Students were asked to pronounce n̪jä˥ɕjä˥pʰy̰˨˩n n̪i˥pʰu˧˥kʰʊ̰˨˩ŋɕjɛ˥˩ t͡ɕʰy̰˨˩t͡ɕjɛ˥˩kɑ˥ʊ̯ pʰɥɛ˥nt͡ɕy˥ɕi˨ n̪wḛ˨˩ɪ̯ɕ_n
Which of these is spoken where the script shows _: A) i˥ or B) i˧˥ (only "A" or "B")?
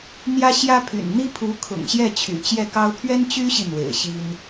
A